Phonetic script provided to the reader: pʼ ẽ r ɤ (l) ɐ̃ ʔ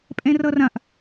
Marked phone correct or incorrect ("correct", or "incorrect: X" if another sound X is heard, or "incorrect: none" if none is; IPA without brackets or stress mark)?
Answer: incorrect: r